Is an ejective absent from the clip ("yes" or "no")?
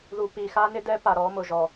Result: yes